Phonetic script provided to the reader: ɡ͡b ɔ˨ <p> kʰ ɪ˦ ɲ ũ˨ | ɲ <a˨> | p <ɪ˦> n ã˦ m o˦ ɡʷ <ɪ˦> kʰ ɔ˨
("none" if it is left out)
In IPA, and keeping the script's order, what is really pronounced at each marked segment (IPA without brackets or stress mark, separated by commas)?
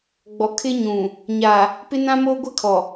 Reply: none, a˨, ɪ˦, ɪ˦